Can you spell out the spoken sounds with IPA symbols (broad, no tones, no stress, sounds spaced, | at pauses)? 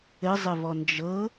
ɘ zˤ ɘ v ɔ n d͡ʒ ɤ